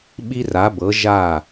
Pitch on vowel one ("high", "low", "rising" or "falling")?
high